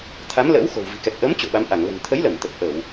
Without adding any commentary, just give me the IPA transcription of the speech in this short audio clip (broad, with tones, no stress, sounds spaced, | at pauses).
t̪ʰ a˨˦ m l ə̰ː˧˥ w x o̤˨˩ w v i̤˨˩ k ɛ˨˩ k̚ ʔ əː˨˦ m t͡ɕ o̰˧˨ ɓ a˨˦ m ʔ a˧˩ ŋ l ə̤˨˩ n t̪ʰ ə˨˦ j l ə˧˩ m t̪ ə˨˩ p̚ ʔ ə˧˩˨ w